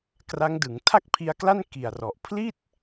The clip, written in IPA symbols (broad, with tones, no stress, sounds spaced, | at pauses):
k r a˦˥ ŋ d ɯ˩˦ ŋ tʰ a˥˩ k̚ pʰ i˧ a̯ k l a˥˩ n k i˨˩ a̯ r ɔ˨˩ ʔ pʰ l i˥˩ t̚